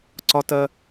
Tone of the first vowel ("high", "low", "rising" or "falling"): high